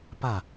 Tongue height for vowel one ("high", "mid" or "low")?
low